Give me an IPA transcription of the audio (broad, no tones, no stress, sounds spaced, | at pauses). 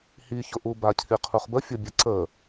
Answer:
h i ç ʊ ʔ u b a cʰ i qʰ u χ b ə fʲ ʊ bʲ ə ǀ ə